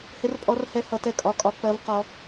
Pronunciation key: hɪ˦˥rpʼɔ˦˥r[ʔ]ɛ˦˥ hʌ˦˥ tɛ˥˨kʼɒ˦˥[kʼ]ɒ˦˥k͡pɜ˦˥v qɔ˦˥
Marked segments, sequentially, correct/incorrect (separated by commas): incorrect, correct